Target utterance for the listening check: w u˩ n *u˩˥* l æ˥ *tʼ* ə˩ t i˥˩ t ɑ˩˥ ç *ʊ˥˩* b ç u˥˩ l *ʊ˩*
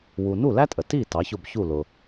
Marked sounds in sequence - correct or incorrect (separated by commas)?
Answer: incorrect, correct, correct, correct